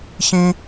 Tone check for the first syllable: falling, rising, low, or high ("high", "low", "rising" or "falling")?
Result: high